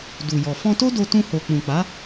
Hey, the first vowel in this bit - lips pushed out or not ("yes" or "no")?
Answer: yes